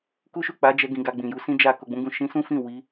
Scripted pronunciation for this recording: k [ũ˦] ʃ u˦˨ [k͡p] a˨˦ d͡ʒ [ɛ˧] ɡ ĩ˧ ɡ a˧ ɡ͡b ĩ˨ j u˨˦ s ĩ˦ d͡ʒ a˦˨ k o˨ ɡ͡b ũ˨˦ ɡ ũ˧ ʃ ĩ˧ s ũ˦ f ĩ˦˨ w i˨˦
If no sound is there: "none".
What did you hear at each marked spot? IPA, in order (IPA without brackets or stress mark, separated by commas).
u˦, k͡p, ɛ˧